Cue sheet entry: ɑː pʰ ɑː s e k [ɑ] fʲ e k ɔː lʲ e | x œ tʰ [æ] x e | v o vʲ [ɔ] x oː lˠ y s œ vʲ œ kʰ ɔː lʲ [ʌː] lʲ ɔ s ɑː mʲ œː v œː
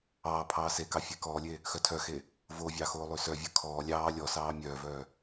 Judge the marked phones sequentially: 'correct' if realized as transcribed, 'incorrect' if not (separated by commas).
correct, incorrect, incorrect, incorrect